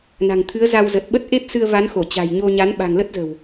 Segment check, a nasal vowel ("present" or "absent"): absent